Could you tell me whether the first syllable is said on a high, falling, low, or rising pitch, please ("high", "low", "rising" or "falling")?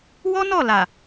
high